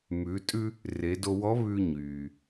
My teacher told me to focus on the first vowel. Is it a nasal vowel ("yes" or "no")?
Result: no